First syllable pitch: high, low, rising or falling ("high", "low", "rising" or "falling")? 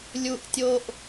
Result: low